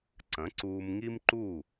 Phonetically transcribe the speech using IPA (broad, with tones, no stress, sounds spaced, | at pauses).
ǀ ɐ̃˩˥ ǀ uː˧ m ŋ i˥ m ǃ u˥˩